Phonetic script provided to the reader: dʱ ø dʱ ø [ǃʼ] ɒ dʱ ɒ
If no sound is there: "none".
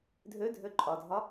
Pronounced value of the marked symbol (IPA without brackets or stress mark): ǃʼ